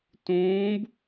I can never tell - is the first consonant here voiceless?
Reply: yes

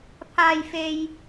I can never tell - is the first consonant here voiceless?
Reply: yes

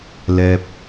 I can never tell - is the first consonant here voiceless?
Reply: no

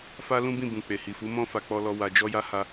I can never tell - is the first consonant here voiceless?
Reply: yes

